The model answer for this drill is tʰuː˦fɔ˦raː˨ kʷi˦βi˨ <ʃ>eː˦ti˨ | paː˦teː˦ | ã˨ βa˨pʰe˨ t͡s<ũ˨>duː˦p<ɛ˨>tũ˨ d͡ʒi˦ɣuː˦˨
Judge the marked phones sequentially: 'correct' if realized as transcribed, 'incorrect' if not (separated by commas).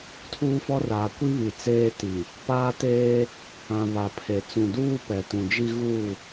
incorrect, correct, correct